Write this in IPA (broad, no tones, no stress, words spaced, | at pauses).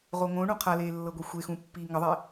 ʁoŋõɳũ qʰaleː lːɤɡʷexʷexũ pːiːŋəðˤe